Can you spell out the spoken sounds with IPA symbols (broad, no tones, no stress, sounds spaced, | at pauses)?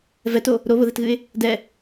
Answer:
v ɛ t o | ɾ o β ʊ ð ɛ t ɣ ɨ ɪ̯ | d ɛ